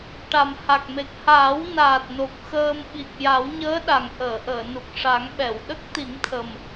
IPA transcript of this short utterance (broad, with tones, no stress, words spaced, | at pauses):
ʈa˨˩mha˨˩k̚me˨˩k̚ haː˨˩˦wnaː˨˩t̚no˨˩k̚ xəː˧m ɓi˨˩k̚ja˨˩˦wɲəː˧˥ ɗa˨˩ŋʔəː˨˩˨ʔəː˨˩˨nu˨˩k̚ ʂa˨˩˦ŋɓɛ˨˩˨w ɗə˦˥k̚ t̪i˨˩˦ŋt̪ʰə˨˩m